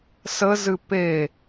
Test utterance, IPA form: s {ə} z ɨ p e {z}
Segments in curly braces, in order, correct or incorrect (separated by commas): correct, incorrect